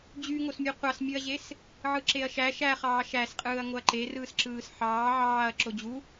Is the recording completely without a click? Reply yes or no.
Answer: no